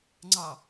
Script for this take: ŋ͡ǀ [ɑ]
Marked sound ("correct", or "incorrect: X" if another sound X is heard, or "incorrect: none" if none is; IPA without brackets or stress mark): correct